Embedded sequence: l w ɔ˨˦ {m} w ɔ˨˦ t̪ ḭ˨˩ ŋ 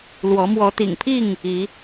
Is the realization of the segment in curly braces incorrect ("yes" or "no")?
no